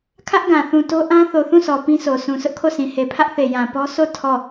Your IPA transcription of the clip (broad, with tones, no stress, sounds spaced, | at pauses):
kʰ ä˦ ʔ ɡ ã˨ θ ũ˨ t o˦ ʔ ã˦ θ o˨ θ ũ˦˨ sʰ ɔ˨ p ĩ˦ s o˨ sʰ ũ˨ sʰ ʊ˦ ʔ kʰ o˦˨ s ĩ˨ h e˨ pʰ ä˦ ʔ θ e˨ j ã˨ p ɔ˦ s o˦˨ tʰ ɔ˦˨